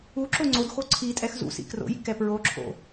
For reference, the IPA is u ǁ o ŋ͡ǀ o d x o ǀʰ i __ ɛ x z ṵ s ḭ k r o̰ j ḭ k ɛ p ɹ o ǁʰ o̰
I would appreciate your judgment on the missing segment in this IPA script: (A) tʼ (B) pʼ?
A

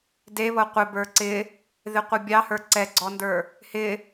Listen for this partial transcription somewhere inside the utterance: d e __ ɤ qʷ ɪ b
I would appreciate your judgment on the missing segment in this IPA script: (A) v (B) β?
B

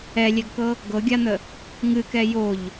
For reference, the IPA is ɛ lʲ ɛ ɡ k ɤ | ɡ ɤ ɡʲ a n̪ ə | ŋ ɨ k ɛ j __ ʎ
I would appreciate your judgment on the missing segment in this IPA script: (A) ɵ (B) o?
B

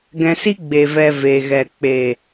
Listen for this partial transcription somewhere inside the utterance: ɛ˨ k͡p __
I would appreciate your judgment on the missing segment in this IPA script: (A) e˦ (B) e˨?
B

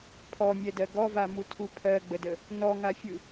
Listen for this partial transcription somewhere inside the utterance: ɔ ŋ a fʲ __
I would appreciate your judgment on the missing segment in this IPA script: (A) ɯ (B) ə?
A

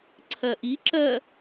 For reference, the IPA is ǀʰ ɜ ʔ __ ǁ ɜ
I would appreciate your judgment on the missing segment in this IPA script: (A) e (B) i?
B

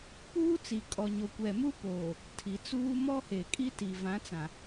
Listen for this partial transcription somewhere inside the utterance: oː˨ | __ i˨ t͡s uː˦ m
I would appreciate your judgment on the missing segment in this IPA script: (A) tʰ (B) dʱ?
A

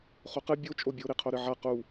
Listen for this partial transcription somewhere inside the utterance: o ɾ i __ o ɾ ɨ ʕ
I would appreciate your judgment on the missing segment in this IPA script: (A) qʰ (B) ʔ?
A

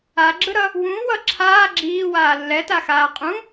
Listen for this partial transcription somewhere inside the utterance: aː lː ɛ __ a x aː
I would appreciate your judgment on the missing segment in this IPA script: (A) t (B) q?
A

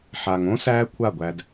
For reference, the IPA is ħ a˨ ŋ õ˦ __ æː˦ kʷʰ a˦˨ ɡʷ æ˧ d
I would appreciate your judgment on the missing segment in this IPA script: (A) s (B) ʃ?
A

